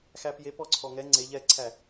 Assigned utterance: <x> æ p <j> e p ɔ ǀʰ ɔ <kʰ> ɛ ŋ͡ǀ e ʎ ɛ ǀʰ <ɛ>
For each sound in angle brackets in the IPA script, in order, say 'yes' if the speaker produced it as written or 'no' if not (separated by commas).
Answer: yes, yes, no, no